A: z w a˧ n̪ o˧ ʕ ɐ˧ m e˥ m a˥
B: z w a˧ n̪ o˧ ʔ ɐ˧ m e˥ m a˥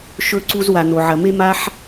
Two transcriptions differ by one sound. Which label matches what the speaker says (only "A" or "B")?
A